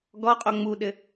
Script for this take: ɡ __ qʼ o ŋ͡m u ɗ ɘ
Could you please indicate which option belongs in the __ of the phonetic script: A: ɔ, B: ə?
A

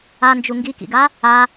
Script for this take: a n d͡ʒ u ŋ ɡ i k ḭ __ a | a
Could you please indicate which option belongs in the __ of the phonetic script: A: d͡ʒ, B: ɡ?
B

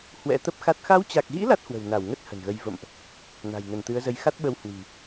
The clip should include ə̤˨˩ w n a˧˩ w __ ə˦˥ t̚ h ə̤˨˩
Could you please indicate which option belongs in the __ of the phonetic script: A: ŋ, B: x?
A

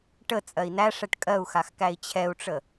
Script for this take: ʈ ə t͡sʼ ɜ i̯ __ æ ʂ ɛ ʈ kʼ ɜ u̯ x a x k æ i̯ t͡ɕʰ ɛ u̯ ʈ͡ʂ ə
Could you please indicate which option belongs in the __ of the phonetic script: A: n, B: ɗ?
A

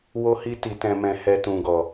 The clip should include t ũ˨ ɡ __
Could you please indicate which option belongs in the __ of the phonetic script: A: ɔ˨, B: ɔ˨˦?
A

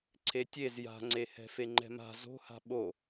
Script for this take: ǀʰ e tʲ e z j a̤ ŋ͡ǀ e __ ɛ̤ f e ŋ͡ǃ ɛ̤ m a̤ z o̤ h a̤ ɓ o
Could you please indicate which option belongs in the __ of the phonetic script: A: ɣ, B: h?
B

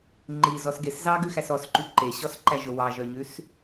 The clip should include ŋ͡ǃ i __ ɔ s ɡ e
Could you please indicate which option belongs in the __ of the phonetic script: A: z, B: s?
A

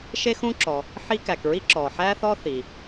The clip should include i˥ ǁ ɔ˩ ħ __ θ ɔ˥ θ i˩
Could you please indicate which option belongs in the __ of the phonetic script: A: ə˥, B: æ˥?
B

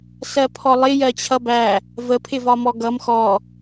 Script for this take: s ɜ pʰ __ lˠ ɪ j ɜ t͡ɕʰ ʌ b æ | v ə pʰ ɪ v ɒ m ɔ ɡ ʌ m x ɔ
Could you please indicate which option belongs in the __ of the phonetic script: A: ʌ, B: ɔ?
B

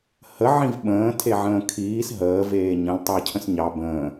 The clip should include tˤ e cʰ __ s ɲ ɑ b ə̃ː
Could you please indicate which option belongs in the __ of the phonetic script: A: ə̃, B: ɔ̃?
A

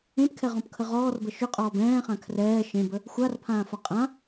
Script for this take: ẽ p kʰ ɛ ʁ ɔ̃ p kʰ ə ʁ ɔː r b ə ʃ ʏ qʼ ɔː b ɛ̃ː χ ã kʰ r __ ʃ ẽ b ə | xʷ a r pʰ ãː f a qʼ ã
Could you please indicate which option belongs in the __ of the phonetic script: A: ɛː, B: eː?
A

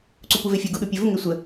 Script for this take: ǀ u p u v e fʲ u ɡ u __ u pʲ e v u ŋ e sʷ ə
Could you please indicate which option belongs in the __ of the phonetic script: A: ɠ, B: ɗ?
B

